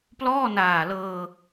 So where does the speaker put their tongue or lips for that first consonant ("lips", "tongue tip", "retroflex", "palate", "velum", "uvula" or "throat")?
lips